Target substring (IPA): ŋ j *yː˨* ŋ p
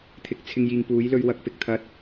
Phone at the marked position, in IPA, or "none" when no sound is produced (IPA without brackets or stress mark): iː˨